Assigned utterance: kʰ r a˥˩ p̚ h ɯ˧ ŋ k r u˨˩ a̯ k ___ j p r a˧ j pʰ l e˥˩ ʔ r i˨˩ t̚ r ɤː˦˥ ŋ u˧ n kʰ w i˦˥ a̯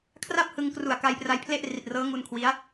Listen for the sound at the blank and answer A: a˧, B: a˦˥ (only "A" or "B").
A